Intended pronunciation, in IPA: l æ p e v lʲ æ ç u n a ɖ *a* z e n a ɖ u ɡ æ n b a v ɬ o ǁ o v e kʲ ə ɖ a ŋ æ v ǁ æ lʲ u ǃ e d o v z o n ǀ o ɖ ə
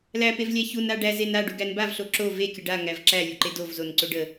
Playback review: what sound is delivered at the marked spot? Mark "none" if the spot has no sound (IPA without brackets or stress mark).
æ